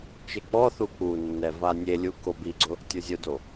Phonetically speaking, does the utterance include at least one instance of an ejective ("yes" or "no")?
no